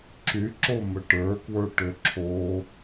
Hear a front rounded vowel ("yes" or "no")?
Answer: yes